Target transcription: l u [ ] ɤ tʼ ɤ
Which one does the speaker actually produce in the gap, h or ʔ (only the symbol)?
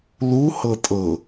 h